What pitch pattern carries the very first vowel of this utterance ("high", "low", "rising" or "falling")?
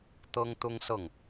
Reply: high